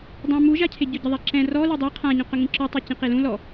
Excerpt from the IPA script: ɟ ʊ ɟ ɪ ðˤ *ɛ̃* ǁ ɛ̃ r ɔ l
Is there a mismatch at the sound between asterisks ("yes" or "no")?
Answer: yes